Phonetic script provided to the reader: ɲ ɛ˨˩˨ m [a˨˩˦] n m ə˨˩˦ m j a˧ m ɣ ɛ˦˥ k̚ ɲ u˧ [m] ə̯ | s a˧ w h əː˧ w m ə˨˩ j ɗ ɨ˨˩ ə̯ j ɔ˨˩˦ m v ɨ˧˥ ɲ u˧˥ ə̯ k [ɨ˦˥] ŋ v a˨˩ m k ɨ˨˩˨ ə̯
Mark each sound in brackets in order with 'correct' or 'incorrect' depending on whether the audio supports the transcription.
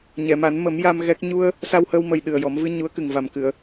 correct, incorrect: none, incorrect: ɨ˨˩

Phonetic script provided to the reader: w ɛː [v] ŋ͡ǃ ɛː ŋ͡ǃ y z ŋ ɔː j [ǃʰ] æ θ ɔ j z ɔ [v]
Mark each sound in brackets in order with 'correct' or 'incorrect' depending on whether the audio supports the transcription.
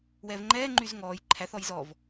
correct, correct, correct

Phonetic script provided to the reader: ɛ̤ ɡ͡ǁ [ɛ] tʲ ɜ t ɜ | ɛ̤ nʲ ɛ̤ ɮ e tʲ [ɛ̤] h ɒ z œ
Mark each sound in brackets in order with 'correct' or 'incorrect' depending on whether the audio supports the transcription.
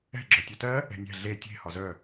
incorrect: œ, incorrect: e̤

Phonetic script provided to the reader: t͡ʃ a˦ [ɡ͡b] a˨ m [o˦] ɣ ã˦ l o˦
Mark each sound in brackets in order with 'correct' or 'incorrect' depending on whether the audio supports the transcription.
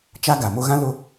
incorrect: ɡ, correct

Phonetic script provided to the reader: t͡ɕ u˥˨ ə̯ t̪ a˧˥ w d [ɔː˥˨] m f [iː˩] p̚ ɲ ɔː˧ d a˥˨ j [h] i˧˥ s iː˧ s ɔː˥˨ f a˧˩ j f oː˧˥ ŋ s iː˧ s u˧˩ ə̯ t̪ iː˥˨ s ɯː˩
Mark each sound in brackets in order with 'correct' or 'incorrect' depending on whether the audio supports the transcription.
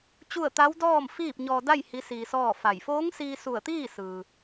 correct, incorrect: iː˥˨, correct

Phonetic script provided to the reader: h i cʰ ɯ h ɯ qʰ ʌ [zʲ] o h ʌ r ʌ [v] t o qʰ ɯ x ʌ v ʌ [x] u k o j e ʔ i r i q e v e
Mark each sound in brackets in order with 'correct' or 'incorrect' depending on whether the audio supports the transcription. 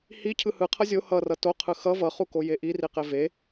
correct, incorrect: none, incorrect: χ

